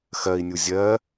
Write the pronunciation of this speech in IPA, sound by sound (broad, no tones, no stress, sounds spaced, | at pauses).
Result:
x ɜ i̯ nʲ u zʲ ɜ